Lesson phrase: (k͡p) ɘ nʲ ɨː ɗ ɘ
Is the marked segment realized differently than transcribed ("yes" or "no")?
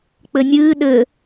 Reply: no